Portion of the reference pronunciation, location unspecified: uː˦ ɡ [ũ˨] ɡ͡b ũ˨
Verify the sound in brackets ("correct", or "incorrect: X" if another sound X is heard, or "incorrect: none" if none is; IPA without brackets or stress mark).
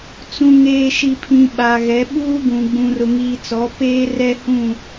correct